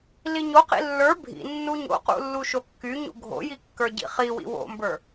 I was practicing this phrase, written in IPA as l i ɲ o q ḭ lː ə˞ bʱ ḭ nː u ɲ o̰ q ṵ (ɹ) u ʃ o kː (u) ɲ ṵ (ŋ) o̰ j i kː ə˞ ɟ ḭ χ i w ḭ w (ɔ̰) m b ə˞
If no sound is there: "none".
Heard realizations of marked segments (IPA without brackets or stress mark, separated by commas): lː, y, ɡʱ, o̰